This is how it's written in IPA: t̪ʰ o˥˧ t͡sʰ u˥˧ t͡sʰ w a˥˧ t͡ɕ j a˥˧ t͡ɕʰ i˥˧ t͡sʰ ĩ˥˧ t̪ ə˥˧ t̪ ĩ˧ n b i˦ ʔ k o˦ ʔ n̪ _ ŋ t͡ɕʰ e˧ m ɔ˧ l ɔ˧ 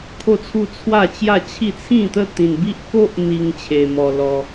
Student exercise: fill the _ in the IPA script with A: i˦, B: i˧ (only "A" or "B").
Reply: B